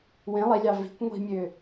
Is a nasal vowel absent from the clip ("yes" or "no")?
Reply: no